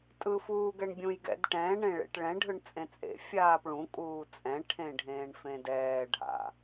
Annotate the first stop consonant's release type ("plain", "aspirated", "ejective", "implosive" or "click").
ejective